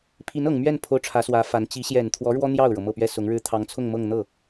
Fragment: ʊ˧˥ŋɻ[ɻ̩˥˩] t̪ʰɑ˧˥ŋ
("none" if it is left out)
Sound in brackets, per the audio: ɻ̩˥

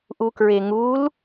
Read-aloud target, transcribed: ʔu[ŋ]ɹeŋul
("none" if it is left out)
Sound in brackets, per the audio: k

